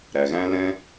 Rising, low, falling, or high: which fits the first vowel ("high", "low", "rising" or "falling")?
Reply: low